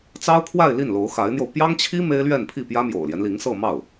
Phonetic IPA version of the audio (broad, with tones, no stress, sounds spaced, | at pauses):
t͡s ɑ˥ ʊ̯ kʰ w a˥˧ ɪ̯ l i˥˩ n l o˧˥ ʊ̯ x a˧˥ ɪ̯ n̪ j o˧ ʊ̯ p j ɑ˥ ŋ t͡ɕʰ i˥ m e˥ ɪ̯ l ɥ ɛ˥˧ n pʰ i˥˩ p j ä˥ m j o̰˨˩ ʊ̯ l j ɛ˦ n l i˧˥ ŋ s ɤ˥˧ m ɑ˥˩ ʊ̯